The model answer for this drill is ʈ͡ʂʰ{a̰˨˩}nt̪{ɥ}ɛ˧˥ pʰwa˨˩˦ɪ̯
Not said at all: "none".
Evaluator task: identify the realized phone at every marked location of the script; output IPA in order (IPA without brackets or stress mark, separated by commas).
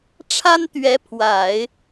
a˥, ɥ